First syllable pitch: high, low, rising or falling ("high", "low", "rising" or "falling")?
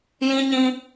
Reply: high